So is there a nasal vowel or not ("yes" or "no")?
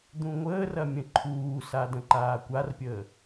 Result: yes